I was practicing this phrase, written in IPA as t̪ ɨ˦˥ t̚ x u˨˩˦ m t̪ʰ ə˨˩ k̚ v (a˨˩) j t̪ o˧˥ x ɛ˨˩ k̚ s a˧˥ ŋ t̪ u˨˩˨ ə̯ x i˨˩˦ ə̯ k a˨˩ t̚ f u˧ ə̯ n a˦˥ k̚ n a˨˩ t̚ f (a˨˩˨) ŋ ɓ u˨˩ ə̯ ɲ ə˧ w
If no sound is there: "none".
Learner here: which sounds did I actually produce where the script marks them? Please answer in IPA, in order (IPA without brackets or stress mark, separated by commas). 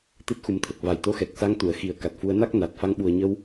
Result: a˨˩, a˧